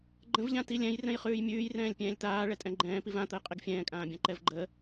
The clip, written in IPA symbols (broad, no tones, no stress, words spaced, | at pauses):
ɡ͡ǃə̃vʎã tilʲɛ̃j rɛ̃jχʉːjmʲʉːj rɛ̃ːlʲpʲɛ̃ːlʲt̪aː ɭɛtʼɛ̃ɡ͡ǃɛ̃ːpiv ãt̪əj qʼiɡfʲɛ̃ːkʼãːbʲã ǃɛvɡ͡ǃə